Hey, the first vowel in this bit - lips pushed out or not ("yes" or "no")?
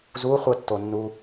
yes